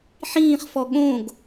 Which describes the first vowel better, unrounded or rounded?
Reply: unrounded